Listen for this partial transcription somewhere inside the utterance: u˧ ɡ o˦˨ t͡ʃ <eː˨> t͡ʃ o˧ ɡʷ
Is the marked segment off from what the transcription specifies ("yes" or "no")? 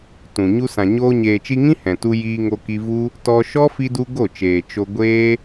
no